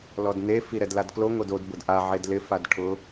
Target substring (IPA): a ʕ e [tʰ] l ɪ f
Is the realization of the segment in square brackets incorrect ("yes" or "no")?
yes